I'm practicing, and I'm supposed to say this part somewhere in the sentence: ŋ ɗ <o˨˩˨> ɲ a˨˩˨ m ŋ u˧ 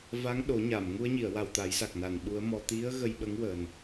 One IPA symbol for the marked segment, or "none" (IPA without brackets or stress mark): o˨˩˦